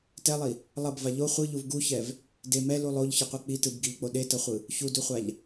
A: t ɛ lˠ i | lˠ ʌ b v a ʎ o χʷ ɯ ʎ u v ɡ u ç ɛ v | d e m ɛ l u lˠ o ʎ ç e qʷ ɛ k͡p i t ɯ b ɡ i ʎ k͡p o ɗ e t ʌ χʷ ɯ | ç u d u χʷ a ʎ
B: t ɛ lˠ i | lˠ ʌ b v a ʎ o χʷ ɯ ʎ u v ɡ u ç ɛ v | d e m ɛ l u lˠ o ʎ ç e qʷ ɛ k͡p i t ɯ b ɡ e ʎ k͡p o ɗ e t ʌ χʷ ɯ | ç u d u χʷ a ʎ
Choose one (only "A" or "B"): A